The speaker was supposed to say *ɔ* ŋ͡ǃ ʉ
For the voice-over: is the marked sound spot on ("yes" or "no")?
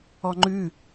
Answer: yes